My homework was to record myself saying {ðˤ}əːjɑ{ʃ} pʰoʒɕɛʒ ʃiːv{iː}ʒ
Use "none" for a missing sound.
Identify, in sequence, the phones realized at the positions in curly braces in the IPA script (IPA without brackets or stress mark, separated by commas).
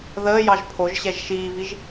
ð, ʒ, i